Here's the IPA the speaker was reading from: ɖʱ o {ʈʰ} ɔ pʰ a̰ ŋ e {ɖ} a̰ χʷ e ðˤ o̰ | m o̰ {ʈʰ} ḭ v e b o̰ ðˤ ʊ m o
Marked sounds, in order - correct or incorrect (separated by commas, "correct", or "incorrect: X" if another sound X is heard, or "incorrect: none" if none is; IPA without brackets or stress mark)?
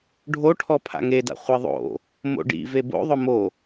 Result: correct, incorrect: d, incorrect: ɖ